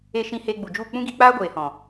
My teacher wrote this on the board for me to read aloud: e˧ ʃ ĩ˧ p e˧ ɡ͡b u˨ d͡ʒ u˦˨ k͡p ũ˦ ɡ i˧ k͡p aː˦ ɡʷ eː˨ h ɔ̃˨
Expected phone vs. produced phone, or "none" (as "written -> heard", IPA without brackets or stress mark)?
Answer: p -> h